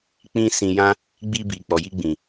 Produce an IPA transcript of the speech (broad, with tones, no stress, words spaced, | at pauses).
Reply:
k͡pĩ˦sĩ˧jã˦ | ɡ͡bi˧bi˨ k͡pɔ˨ji˧ɡ͡bĩ˨